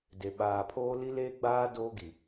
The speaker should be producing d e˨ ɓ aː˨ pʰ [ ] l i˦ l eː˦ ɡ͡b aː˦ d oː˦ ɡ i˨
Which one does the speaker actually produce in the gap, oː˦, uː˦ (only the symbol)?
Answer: oː˦